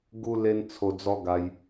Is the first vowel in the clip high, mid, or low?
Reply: high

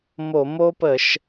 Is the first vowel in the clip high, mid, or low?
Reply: mid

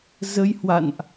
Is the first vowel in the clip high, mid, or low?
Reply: mid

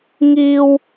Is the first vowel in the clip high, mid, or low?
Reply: high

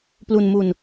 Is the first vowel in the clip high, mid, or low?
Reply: high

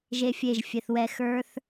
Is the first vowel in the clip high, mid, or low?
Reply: mid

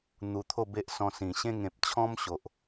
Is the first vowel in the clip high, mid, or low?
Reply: high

